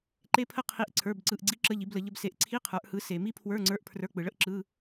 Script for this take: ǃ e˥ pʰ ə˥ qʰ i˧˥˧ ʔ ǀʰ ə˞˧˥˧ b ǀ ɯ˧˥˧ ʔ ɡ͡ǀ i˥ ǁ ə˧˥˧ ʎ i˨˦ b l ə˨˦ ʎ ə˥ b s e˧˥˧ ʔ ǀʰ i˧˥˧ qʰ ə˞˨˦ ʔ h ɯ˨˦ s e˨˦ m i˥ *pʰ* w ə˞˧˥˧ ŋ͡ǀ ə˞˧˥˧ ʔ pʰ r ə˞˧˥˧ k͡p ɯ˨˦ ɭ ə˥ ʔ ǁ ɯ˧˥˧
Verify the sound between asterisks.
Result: correct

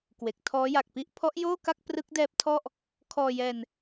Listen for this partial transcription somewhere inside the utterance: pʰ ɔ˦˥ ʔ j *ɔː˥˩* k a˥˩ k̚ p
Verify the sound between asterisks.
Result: incorrect: oː˥˩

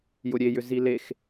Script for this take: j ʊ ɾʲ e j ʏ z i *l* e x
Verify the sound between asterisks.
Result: correct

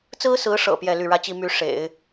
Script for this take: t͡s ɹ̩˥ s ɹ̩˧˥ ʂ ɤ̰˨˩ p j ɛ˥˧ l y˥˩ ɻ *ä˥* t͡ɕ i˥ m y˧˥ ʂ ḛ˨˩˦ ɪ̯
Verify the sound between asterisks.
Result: correct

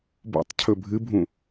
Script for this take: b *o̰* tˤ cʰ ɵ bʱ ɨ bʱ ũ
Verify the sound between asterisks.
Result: correct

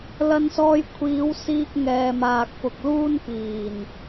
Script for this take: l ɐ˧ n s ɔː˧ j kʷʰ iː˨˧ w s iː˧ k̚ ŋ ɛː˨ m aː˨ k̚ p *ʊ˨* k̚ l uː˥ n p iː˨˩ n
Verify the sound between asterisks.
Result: correct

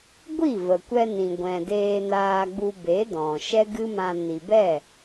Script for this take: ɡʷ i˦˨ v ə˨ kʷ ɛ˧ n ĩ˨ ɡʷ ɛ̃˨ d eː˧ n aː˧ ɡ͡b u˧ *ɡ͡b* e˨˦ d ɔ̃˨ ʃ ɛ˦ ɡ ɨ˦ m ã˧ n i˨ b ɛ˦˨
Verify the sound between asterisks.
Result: incorrect: b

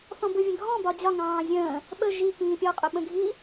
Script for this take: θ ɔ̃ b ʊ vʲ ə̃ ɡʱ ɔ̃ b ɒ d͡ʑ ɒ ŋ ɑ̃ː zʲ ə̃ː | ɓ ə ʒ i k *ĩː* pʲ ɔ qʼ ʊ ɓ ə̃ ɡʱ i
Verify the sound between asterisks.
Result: correct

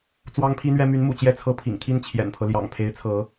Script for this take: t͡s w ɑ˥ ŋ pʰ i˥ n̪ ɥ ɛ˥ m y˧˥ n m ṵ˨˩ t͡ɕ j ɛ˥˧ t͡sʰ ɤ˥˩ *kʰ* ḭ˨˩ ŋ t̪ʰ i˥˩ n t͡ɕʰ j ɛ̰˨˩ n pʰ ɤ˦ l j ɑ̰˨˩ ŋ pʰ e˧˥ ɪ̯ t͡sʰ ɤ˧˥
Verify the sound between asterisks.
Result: incorrect: pʰ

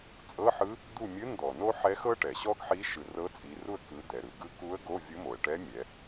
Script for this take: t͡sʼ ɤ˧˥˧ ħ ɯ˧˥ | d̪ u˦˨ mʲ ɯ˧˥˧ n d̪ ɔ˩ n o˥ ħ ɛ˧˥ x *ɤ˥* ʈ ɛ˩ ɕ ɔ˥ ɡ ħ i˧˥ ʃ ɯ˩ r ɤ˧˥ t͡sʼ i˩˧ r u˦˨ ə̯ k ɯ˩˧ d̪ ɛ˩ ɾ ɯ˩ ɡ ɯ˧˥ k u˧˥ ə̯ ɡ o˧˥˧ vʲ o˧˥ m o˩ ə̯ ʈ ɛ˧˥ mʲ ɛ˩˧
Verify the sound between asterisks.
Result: correct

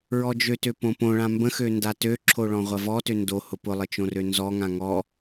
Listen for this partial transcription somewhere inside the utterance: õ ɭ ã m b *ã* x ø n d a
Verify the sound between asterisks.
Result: incorrect: ə̃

